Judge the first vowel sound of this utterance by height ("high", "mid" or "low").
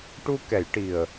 high